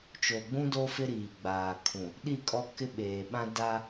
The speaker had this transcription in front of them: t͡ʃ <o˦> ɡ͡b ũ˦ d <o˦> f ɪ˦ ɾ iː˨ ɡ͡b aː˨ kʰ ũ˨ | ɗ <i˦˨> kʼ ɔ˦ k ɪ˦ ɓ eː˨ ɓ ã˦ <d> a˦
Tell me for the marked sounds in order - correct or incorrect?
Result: incorrect: o˨, correct, correct, correct

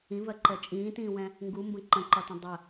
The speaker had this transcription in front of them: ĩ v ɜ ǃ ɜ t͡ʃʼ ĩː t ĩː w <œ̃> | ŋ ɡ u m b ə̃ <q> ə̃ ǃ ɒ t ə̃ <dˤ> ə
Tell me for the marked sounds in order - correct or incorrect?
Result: incorrect: ɛ̃, incorrect: ǃ, correct

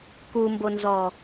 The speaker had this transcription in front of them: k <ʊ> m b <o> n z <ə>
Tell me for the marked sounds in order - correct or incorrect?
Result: incorrect: u, correct, incorrect: ɔ

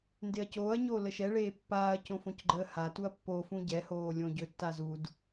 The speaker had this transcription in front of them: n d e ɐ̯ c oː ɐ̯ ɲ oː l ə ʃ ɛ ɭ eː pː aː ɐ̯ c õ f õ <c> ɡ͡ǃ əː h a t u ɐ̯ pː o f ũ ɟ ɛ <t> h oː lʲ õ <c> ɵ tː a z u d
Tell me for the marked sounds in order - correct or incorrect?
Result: correct, incorrect: none, incorrect: ɟ

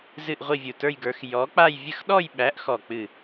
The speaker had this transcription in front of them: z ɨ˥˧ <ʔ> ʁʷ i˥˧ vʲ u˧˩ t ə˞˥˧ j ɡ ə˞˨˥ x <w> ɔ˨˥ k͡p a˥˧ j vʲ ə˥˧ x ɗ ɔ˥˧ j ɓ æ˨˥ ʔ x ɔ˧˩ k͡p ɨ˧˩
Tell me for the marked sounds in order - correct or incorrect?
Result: correct, incorrect: j

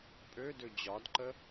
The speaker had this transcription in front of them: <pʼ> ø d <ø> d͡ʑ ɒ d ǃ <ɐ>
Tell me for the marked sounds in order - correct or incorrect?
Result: correct, correct, incorrect: ə

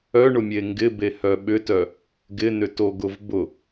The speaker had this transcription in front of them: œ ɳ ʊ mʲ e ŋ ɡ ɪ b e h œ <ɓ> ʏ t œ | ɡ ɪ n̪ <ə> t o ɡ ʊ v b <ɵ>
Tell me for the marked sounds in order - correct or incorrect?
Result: correct, incorrect: ʏ, incorrect: ʊ

